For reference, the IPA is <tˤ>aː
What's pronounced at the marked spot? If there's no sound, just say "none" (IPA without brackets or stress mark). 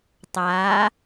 tˤ